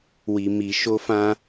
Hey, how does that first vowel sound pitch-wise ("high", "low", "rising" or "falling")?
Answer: low